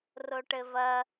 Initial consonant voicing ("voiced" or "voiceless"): voiced